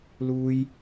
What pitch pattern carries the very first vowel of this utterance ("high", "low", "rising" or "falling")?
high